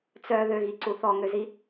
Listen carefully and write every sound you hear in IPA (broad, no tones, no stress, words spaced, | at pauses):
t͡sœ ðøɣiǀu θɔŋøzi